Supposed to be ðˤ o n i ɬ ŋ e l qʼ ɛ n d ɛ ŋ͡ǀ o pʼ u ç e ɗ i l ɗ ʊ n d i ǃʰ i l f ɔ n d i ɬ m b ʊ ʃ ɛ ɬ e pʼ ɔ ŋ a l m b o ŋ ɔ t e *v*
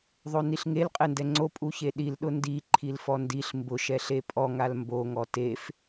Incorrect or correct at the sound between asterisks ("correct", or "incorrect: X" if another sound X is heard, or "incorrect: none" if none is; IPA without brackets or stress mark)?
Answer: incorrect: f